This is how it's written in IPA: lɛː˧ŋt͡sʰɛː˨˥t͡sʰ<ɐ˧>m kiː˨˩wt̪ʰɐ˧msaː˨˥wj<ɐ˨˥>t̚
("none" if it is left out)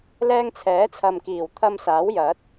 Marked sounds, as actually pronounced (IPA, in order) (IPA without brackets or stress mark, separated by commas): ɐ˨, ɐ˨˥